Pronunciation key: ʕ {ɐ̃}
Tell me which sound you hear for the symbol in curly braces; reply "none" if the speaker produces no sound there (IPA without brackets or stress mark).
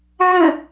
ɐ̃